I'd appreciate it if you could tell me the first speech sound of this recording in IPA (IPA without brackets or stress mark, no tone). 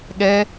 ɠ